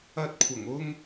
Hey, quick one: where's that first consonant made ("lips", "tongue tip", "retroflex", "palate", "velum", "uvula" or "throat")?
tongue tip